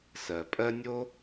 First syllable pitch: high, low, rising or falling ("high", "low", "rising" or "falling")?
low